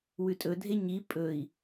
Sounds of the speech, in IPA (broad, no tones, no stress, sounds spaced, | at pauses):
w ʉ tʼ ɵ dʱ e ɲ i pʼ ɵ i̯